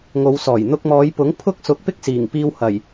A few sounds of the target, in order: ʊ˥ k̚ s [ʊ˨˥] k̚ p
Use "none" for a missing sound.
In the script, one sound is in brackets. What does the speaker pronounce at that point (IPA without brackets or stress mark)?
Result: ʊ˨˥